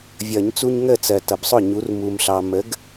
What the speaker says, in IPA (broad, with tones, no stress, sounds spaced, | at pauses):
vʲ ʌ˨˩˦ ɲ t͡s u˦ ɲ ŋ ə˥˩ t͡s ɜ˨ t ʌ˨ b sˤ ʊ˥˩ ɲ u˨˥ r m u˨ m ɬ ɑ˨ m ə˨˥ ɡ